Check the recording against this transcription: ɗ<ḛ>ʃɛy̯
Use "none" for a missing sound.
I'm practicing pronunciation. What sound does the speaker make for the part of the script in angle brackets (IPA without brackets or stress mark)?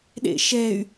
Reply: ḛ